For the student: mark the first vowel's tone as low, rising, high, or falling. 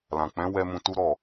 low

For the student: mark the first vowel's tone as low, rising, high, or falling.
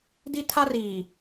high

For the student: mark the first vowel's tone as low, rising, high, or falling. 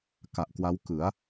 low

